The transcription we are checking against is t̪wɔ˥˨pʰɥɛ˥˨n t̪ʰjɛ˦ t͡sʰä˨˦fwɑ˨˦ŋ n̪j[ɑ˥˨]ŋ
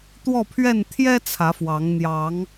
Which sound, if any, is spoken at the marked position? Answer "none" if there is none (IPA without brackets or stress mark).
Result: ɑ˨˦